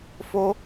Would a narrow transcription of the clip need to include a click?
no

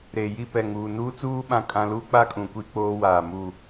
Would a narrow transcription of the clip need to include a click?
no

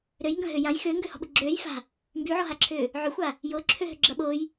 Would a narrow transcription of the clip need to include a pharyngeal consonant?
yes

